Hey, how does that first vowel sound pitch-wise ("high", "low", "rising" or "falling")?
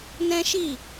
high